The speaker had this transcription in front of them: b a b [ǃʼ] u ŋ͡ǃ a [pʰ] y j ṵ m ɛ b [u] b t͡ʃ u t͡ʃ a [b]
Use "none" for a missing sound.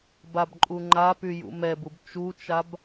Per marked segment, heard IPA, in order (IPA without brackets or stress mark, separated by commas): ǃʼ, p, u, b